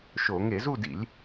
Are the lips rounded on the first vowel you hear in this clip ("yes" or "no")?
yes